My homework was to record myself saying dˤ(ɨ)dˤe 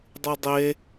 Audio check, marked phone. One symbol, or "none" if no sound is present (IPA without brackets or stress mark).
ɨ